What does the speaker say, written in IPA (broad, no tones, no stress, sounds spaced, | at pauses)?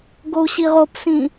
ɡ o u̯ ɕ i ʁ o p s ĩ